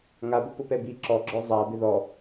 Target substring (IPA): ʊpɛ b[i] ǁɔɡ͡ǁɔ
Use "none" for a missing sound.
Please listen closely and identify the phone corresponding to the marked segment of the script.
i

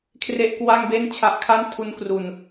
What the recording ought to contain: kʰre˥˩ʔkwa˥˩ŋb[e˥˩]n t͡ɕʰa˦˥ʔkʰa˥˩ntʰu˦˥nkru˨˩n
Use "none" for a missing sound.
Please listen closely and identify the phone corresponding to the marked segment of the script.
e˥˩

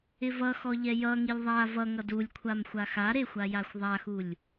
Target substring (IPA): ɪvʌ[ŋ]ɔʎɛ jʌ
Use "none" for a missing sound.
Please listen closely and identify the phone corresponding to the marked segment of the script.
x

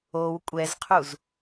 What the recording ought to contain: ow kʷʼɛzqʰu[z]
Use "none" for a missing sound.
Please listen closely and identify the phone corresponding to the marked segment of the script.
z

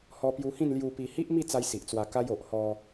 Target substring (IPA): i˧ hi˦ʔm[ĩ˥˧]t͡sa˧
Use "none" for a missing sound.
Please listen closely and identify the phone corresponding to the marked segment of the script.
i˥˧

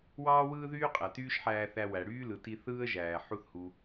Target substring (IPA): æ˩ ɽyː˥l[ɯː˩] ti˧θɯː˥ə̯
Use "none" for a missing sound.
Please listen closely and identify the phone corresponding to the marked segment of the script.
ɯ˩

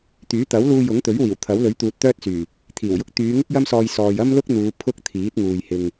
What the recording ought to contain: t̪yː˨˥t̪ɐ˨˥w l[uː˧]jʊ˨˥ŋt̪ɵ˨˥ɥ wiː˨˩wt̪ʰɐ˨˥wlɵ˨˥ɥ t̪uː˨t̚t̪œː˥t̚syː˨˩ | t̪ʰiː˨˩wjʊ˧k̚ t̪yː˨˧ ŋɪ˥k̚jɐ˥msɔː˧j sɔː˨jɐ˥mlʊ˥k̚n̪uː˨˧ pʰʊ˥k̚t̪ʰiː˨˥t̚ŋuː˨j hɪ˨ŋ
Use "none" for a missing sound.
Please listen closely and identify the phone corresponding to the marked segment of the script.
uː˧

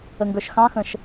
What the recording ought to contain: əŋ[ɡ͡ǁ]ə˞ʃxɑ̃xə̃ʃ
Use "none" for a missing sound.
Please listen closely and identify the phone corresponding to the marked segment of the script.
ɡ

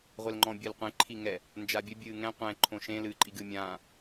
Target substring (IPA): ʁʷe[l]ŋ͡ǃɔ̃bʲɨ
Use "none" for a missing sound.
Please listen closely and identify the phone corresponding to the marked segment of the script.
l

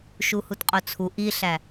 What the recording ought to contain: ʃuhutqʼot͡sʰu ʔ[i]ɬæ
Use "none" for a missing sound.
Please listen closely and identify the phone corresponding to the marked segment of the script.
i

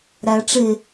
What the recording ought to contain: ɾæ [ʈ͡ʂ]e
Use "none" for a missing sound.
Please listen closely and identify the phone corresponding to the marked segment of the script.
ʈ͡ʂ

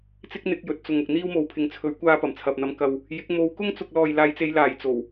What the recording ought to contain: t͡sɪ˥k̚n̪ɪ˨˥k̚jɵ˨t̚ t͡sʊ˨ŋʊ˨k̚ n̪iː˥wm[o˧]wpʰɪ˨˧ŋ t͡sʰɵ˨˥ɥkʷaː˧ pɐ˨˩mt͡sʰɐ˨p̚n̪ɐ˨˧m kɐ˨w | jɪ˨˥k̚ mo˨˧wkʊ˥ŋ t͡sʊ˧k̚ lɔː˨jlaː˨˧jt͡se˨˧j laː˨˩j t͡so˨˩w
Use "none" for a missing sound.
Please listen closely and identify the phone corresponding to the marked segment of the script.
o˨˧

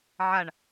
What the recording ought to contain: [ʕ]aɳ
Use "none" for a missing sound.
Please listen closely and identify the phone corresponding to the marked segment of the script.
ʕ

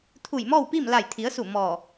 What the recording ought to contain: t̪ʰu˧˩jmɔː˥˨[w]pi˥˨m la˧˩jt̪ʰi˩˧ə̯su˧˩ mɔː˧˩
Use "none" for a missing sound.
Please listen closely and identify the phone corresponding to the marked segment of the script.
w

